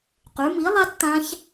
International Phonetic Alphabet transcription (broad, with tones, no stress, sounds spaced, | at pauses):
q ʉ˩˥ m i˩˥ lˠ a˦˥ t t̪ ã˦˥ ç